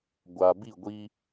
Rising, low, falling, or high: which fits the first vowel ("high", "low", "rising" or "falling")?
low